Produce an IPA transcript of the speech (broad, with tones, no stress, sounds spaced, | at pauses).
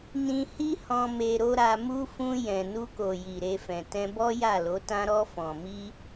n ĩ˧ h i˦ h ɔ̃˧ m e˧ ɾ o˦ ɾ a˧ m u˦ f ũ˧ j ɛ̃˨ n u˧ k o˨ j i˨ ɾ e˧ f ɛ̃˨ t ɛ̃˧ b ɔ˦ j a˦˨ l o˨˦ t ã˦ ɾ ɔ˧ f ɔ̃˨ m i˧